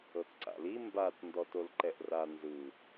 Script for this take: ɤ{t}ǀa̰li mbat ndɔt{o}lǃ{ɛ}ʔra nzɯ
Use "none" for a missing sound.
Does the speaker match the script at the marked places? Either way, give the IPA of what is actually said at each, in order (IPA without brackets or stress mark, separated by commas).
t, o, ɛ